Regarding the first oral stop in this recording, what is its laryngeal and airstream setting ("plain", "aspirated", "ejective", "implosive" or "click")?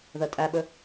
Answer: ejective